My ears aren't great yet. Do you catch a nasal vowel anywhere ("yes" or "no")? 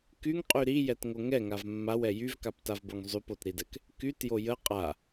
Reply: no